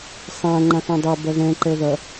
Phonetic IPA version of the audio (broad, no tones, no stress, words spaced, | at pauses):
sˤã ŋ͡ǃãθɔ̃dˤɛ bɐðɛ̃ ǃɛðɐ